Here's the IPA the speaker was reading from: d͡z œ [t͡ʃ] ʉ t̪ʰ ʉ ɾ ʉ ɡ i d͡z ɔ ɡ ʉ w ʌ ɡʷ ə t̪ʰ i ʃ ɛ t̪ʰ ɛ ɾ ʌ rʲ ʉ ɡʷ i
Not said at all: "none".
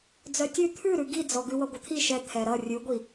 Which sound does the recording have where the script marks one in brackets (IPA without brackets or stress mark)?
tʲ